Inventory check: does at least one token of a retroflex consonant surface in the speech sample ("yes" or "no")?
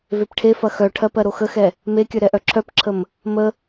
yes